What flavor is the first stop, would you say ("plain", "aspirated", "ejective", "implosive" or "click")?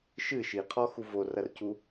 aspirated